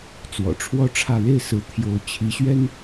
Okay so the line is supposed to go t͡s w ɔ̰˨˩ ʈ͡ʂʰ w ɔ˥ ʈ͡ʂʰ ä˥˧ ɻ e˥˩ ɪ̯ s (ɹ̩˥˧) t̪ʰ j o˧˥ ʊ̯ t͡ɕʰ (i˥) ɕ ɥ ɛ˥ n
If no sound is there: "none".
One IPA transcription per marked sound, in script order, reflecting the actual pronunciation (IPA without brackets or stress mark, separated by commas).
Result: ɹ̩˧˥, i˧˥